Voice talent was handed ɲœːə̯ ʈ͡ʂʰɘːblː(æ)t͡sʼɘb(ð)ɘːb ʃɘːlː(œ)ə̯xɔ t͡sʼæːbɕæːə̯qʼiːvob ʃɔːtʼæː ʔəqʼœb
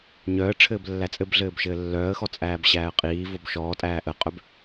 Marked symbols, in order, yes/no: yes, no, no

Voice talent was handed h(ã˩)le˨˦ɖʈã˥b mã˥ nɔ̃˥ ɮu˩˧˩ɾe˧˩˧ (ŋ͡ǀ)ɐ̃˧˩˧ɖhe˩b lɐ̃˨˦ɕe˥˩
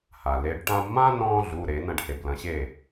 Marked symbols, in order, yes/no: no, no

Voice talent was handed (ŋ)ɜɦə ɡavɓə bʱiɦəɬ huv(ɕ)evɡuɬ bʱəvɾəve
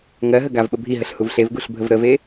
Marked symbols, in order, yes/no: yes, no

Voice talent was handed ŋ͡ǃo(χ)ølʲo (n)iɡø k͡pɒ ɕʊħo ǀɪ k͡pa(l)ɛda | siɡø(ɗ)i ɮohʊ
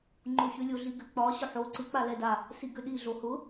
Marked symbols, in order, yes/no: no, no, yes, yes

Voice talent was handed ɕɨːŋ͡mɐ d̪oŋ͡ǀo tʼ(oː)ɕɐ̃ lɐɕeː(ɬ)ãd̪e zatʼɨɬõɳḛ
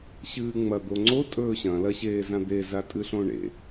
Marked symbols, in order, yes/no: no, no

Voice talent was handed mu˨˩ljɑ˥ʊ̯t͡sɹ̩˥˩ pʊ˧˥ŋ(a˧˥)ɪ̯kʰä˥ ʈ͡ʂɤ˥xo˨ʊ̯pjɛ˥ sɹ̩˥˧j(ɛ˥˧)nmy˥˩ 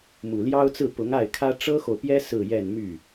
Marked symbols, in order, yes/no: no, yes

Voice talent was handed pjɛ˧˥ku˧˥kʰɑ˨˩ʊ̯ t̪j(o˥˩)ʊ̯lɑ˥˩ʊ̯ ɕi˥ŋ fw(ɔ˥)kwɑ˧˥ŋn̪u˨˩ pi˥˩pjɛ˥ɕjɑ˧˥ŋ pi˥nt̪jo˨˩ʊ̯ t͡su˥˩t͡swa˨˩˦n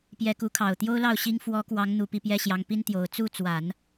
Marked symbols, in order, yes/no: no, no

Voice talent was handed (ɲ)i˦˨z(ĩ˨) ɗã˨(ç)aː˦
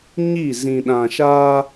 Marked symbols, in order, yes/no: yes, yes, no

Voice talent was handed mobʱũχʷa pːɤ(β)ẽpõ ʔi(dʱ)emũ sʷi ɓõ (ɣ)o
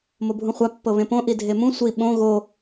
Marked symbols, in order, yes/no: yes, yes, yes

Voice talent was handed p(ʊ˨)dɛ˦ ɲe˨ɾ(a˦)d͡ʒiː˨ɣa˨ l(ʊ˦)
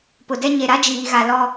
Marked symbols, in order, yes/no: yes, yes, no

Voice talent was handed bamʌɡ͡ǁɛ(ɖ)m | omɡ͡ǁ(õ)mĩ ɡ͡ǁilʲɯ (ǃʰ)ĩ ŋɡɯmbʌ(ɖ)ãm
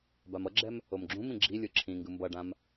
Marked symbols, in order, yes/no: no, no, no, yes

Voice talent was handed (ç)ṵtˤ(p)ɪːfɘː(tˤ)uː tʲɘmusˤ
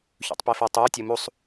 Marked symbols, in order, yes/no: yes, yes, yes

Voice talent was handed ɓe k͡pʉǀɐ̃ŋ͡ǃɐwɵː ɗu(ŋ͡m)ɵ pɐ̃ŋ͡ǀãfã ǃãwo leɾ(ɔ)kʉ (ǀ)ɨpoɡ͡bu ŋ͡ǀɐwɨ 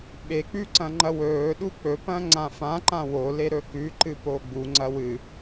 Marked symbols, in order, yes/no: no, no, no

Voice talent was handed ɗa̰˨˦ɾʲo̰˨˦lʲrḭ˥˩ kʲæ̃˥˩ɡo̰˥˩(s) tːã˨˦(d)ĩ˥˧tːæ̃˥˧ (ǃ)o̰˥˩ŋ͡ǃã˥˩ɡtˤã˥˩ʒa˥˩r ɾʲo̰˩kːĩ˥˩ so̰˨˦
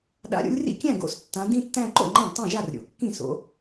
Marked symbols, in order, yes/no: yes, yes, yes

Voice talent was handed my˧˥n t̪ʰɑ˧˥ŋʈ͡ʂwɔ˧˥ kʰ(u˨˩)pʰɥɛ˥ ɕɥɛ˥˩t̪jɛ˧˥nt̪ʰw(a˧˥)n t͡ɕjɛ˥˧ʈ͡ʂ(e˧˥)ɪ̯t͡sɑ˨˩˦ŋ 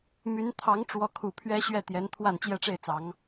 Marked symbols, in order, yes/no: yes, no, no

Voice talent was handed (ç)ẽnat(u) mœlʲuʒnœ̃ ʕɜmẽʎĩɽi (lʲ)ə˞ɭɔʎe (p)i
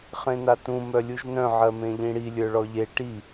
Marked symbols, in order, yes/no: no, no, yes, no

